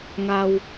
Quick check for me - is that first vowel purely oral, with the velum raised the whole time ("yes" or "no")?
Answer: yes